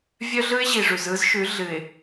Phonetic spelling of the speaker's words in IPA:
vʲ œ˦ ɮ ɯ˦ ɪ̯ ʑ i˨ ʐ ʉ˨ z ɯ˦ z ʃ ʉ˨˦ ɮ ɨ˨ ɪ̯

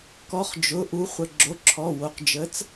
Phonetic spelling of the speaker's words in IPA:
k ɔ˨˥ χ d͡ʒ ʊ˩˧˩ ʔ u˨˥ χʷ ə˩˧˩ ɡ͡ǁ o˩˧˩ ǁʰ ɔ˩˧˩ w o˩˧˩ q d͡ʒ ə˨˥ t͡s

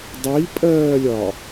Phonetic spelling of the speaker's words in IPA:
dˤ i pʼ ɜː lʲ ɒ

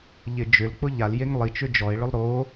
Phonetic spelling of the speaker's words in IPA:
ʎ ɪ d͡ʒ ʏ l k͡p ʊ ʎ a l j e ŋ lˠ i t͡ʃ ʏ d͡ʒ ɔ e̯ ɭ ʏ lˠ ɾ o

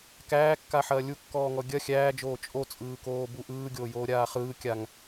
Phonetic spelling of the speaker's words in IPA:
k æː kː a ħ ɐː lʲ u kː ɔː ŋ ɔ ɡʲ ɐ xʲ æː d͡ʒ oː t͡ʃʼ o t͡sʼ ɯː k oː b u ʔ ɯː ɡʲ oː j oː ɾʲ aː χ ɯː kʲ a ŋ

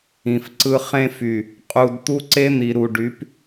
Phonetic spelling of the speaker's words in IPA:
ĩ˨ f ǀ ɯ˦ χ ẽ˦ f y˨ | qʼ u˨ d t̪ u˦ ǀ e˦ n̪ i˨ ɾ u˨ ɖ y˨˦ p

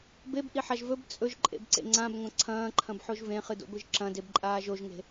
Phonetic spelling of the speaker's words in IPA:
b e b ʔ i ħ a ʒ v ɵ b t͡sʼ ɵ ʒ ǃʼ ḛ b ǀ ḛ ŋ͡ǀ ã b ŋʷ ɐ̃ ǀʰ ɐ̃ː ǃʰ ɐ̃ b ħ o ʒ v ẽ χ ɨ d o̰ ɡʷ ɨ ʒ ǁ ɐ̃ d e b ǃʼ aː ʒ o ʒ ŋ e̤

